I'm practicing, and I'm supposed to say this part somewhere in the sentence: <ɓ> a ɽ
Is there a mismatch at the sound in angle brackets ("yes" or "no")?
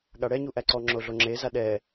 yes